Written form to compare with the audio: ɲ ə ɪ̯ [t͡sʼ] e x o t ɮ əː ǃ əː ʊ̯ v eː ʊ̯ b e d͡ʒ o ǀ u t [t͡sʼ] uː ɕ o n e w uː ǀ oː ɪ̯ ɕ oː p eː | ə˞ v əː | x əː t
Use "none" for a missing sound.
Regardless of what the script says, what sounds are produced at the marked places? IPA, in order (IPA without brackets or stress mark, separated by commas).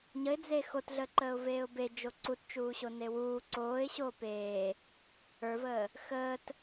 d͡z, t͡ʃ